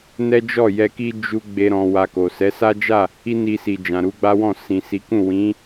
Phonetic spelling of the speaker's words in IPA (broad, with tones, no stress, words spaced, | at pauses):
nɛ˦d͡ʒɔ˦˨ jɛ˧ki˦ d͡ʒu˦ ɡ͡be˦ɾɔ̃˧wa˧ko˨ sɛ˨˦sa˦d͡ʒa˦˨ | i˦ni˧si˨ d͡ʒã˨ɾu˨˦ɡ͡ba˦wɔ̃˦˨ sĩ˨si˨˦kũ˦˨ wĩ˨˦